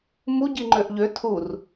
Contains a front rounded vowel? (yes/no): yes